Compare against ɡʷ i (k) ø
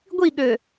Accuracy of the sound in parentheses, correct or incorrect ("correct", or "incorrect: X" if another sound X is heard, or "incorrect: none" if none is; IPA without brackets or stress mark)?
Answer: incorrect: ɠ